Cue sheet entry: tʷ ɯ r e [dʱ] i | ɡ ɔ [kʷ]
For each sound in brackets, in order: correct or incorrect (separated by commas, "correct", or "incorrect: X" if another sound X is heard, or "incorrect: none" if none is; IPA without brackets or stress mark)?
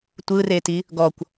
incorrect: t, correct